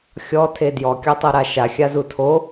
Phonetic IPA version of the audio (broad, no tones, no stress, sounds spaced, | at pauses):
xʲ ɔ tʰ e d j ɔ kʲ ɔ tˤ ɤ ɾ a ʃ a xʲ a z u tʰ o